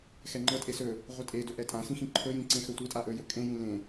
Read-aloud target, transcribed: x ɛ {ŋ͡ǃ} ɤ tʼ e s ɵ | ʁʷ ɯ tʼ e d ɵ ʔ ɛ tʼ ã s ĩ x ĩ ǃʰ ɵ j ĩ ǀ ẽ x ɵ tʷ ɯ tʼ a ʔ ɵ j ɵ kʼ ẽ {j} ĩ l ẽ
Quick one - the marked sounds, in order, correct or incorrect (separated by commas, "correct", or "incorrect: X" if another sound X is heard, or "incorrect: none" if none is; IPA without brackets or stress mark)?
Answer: correct, correct